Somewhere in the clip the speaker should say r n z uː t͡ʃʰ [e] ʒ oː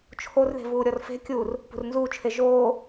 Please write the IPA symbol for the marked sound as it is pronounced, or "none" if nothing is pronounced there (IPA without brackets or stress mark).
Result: e